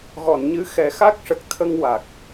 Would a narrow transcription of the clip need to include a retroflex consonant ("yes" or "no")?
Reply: yes